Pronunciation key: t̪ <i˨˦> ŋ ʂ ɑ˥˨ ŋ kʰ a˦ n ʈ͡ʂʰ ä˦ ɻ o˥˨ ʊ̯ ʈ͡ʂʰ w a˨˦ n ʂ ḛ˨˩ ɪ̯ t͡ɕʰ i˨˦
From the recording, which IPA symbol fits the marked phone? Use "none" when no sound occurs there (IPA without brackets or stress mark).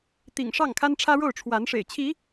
ḭ˨˩